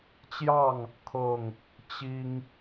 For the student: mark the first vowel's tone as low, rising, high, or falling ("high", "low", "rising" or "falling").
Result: falling